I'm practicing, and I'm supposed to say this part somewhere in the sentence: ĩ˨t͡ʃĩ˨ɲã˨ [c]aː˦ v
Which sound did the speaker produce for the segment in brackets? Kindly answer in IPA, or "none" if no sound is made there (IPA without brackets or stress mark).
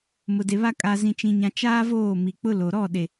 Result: t͡ʃ